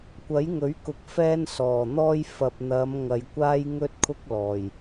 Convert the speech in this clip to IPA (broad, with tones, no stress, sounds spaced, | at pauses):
kʷ ɐ˨˥ j ŋ ɵ˨˥ ɥ k ʊ˨˥ k̚ f ɛː˥ n s ɔː˨˩ n̪ ɔː˥ j f ɐ˨ p̚ n̪ ɐ˨˧ m ŋ ɐ˨ j kʷ aː˥ j ŋ ɵ˥ t̚ kʰ ʊ˥ k̚ l ɔː˨˩ j